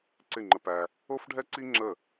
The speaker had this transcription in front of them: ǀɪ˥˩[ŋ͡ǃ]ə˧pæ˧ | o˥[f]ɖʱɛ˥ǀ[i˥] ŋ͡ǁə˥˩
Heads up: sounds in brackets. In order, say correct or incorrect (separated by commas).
correct, correct, correct